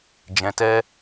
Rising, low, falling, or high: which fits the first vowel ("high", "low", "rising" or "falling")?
low